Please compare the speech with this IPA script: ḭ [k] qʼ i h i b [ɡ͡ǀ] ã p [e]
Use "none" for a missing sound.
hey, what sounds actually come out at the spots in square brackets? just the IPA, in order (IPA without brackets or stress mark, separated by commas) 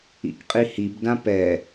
k, d, ɛ